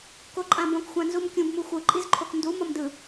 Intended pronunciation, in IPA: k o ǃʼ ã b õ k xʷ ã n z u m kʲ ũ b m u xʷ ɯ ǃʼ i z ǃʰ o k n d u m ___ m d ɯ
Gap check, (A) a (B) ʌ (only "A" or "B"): B